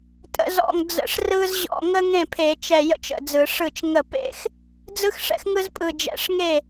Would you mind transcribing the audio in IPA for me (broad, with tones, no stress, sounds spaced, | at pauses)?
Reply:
tʼ ə̰˧˩˧ z ɔ̰˧˩ ŋ d͡z ə̰˧˩ ʂ r ɯ˥ z ʑ ɔ̰˥˩ ŋ ə˥ ŋ ẽ˥˩ pʰ e˧˩˧ t͡ʃ ɛ˧˩ j ə̰˥ t͡ʃ ə̰˥˩ d͡z ɯ˧˩˧ ʂ ɯ˥˩ t͡ʃ ŋ ə˥˩ p ḛ˥ x | d͡z ɯ˥ x ʂ ɛ̰˥ x ŋ ɯ˥ z pʼ ɯ˧˩ d͡ʒ ɛ̰˧˩˧ ʂ ŋ e˥˩